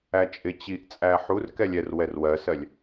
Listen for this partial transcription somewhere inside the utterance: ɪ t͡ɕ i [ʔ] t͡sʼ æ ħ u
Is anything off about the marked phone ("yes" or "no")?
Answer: no